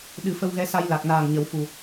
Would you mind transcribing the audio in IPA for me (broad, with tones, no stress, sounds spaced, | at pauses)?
ɗ ɨ˨˩˦ f ə˧ w ɣ ɛ˧˥ s a˧ j l a˨˩ k̚ n aː˨˩ ŋ ɲ ə˨˩˦ w f u˨˩